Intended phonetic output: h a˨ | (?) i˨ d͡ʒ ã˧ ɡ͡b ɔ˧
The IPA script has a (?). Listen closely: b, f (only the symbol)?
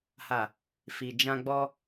f